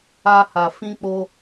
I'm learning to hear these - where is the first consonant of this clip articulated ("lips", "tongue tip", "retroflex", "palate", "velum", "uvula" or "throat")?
throat